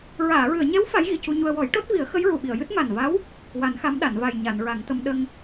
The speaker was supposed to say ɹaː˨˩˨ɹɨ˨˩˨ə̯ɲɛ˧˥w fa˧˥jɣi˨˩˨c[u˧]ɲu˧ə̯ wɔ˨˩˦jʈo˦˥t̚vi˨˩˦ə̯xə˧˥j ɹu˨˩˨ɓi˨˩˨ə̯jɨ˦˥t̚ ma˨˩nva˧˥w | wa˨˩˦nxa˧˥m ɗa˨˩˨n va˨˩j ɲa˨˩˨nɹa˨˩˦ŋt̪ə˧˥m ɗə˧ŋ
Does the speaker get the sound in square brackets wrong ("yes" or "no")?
no